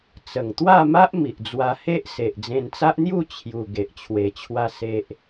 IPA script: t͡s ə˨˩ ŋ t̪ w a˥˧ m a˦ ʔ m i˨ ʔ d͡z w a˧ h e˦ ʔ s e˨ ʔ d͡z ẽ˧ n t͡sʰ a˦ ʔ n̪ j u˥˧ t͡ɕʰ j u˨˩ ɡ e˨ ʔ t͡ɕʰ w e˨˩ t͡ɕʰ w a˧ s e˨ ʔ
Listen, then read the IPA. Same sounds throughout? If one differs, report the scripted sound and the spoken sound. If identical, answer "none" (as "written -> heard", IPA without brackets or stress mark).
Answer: t͡sʰ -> t͡s